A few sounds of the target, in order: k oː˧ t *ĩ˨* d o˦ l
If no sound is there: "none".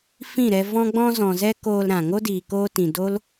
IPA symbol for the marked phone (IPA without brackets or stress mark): ĩ˨